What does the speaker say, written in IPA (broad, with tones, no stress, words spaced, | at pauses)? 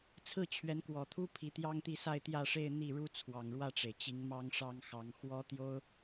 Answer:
t͡sʰɹ̩˥˩t͡ɕʰɥɛ˧˥nkwɔ˨˩t̪ʰu˥ pʰi˧˥t̪jɑ˥ŋt̪i˥˧ sa˥˧ɪ̯t̪jä˥˧ʂe˥˧ɪ̯ n̪i˥˩ɻu˥ t͡sʰwɑ˨˩ŋɻwä˥˩ʈ͡ʂe˩ɪ̯ t͡ɕi˧˥ŋmɑ˥ŋʂɑ˥ŋxɑ˧˥ŋ xwɔ˥ t̪jo˥ʊ̯